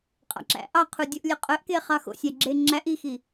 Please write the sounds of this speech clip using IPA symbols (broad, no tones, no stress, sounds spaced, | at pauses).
qʼ ɑ̰ ǁ æ̰ ʔ ɑ qʰ u dʲ o ʔ lʲ œ qʼ œ ʔ k e χ ɑ x o̰ sʲ æ ɡ͡ǁ e ŋ͡ǁ æ ʔ i x i